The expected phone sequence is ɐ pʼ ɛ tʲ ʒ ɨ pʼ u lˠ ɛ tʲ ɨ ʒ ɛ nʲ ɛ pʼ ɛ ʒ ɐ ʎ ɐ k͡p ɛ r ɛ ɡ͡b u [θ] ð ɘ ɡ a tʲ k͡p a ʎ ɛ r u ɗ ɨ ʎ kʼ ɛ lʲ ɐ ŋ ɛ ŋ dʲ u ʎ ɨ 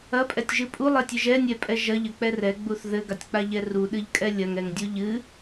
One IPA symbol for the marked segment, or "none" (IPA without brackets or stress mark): θ